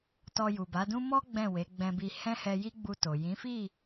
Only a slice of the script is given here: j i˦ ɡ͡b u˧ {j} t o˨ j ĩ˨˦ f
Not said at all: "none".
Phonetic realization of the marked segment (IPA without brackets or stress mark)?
none